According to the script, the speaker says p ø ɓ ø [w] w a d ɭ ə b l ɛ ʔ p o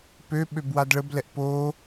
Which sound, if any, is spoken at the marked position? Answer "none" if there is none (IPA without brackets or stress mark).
b